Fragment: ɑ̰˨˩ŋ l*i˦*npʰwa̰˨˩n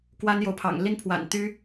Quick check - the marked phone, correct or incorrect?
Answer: correct